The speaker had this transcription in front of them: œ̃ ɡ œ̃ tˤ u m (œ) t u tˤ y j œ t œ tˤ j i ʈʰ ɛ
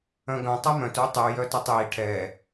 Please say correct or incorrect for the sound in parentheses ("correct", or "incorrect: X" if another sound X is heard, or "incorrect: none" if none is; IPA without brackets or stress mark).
incorrect: œ̃